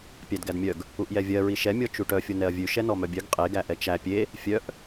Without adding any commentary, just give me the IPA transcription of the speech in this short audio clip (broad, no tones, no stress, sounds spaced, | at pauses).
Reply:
pʲ æ d ɡ æ d mʲ œ ɡ | u ʔ j ɛ vʲ ɜ ɹ i ʃ ɛ mʲ ɔ t͡ʃ u ʈ œ fʲ o n ɛ ɐ̯ vʲ ʉ ʃ ɛ n ɔ m œ bʲ œ ɡ qʼ e ɡ æ ʔ ɛ t͡ʃ æ pʲ e | fʲ œ ʔ